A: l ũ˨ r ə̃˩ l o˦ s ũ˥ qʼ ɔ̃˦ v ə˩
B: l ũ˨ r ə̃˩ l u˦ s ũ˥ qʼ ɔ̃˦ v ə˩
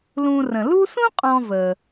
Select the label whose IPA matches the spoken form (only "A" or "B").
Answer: B